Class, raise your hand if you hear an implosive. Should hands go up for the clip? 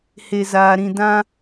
no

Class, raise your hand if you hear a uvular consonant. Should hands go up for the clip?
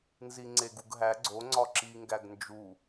no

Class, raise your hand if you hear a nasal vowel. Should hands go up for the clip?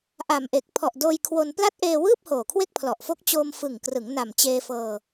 no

